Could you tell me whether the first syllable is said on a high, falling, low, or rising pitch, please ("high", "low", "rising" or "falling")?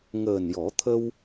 low